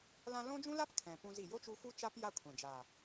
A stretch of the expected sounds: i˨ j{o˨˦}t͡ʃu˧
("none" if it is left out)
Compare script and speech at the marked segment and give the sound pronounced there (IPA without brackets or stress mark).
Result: o˦